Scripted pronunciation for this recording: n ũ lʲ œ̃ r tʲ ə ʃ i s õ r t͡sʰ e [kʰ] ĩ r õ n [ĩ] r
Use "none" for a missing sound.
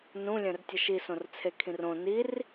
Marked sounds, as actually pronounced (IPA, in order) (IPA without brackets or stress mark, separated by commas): kʰ, i